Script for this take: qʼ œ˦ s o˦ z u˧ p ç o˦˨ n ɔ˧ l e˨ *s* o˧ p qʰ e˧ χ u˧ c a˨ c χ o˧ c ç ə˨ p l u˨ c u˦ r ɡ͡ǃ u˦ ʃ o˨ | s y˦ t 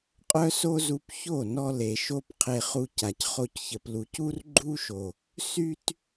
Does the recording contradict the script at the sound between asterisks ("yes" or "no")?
yes